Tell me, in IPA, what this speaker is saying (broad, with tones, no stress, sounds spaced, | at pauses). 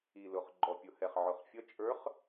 i˨˩ l ʊ˨˩ χ ɡ͡ǃ ɔ˨˩ pʲ ʊ˨˩ h ɛ˨˩ χ ʕ ʊ˨˩ χ fʲ ʌ˧˥ t͡ʃʼ ə˞˧˥ χ